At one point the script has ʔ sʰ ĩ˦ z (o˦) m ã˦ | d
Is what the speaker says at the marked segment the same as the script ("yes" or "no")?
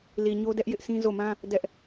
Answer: no